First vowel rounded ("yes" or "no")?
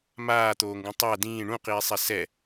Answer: no